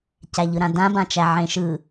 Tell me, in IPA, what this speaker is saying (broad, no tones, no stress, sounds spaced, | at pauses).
c æ ʎ ɯ ɾ ã d ã b ã t͡ʃ æ ʕ ẽ ʃ ɯ